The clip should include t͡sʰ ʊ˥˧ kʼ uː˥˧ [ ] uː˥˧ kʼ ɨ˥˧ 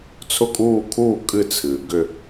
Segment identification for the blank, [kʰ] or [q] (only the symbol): kʰ